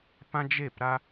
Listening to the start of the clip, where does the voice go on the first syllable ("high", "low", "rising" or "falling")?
high